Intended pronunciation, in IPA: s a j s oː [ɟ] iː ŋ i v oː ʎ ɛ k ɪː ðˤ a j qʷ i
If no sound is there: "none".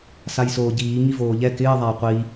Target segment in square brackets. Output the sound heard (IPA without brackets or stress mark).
ɟ